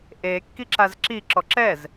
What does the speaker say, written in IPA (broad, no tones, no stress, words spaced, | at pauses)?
ʔekːiǁaz ǁiǁɔ ǁɛz